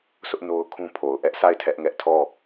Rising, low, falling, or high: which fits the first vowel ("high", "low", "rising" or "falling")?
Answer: high